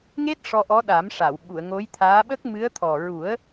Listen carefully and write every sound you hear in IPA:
ŋ e˦˥ t̚ ʂ ɔ˧ ʔ ɔ˧˥ ɗ a˨˩˦ m ʂ a˨˩˨ w ɓ u˨˩˨ ə̯ ŋ o˧˥ j t̪ʰ aː˧˥ ɓ ə˦˥ k̚ m ɨ˧˥ ə̯ t̪ʰ ɔ˨˩ ɹ u˨˩˦ ə̯

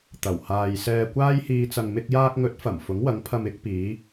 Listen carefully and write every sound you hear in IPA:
t̪ ɐ˨˩ w h aː˨ j s ɛː˨ kʷ aː˧ j h iː˨ t͡s ɐ˨ ŋ m ɪ˧ k̚ j aː˧ k̚ ŋ ɵ˨˥ t̚ f ɐ˨˩ m f ʊ˨˥ ŋ w ɐ˨˥ ŋ pʰ ɐ˧ m ɪ˨˥ k̚ p iː˨˧

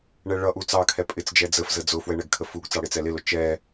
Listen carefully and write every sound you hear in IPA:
ɳ ɛ ɭ ʌ ʔ u t͡s ɑ kʰ ɛ pʼ ɪ t͡s d͡ʒ ɛ d͡z ə f z ə d͡z ʊ f w ɛ ɳ ɛ ɡ kʰ ə f u ɡ t͡s ɑ ɽ ɪ t͡s ɛ l ɪ l ʊ t͡ʃ ɛ

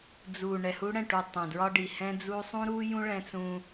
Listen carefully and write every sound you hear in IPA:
d͡z u˨ ɳ ɛ˨ h u˦ ɽ ɛ̃˦˨ ʈ u˨ tˤ ɛ̃˨ d ɹ ɒ˦ ɖ i˨ h ɛ̃˦ d͡z u˦ sˤ ũ˦ ɾ u˦ j ũ˦ ɭ ɛ̃˦ t͡s ũ˦

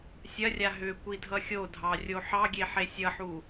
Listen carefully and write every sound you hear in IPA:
sʲ ɐ rʲ a ɦ ʏ kʷ i dʱ ʌ xʲ o dʱ ɑ rʲ o ħ ɑ ɡʲ e ħ e sʲ ʌ ħ u

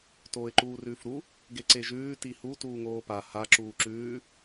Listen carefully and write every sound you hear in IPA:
t oː ɪ̯ ǃ uː r ʉː f ɾ u | ɡ e ǀ e ʒ ʉː t i h u t uː ŋ oː p a h a ǁ uː ǁ ʉː

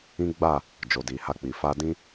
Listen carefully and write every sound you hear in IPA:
ĩ˦ ɡ͡b a˦˨ | d͡ʒ o˨ d i˨ h a˧ k͡p i˨ f a˧ d ĩ˦

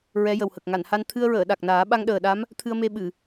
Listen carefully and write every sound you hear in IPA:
ɹ ɛ˧˥ j ə˨˩ w h ə˨˩ k̚ ŋ a˨˩˨ n h a˧ n t̪ʰ ɨ˧ ə̯ ɹ əː˨˩˨ ɗ a˨˩ k̚ n aː˨˩˦ ɓ a˧ ŋ ɗ əː˨˩ ɗ a˧˥ m | t̪ʰ ɨ˧ ə̯ m e˧ ɓ ɨ˨˩˨

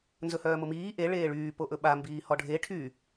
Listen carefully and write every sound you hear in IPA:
n z ɵ h œː m ʊ m iː ʔ e ɭ eː ɭ yː p o ʔ ɵ ɓ a m b iː h ɔ ɖʱ e ʈʰ y

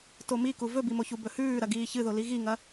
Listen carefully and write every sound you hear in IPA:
t o m i k u v ɵ b i m o ç u b ɵ h ʉː ɾ ɐ ɡ iː ç ɨ ð o l i ɣ i ŋ ɐ

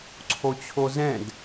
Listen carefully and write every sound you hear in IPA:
ǀʰ o t͡ɕʰ o z ɛ̃ d

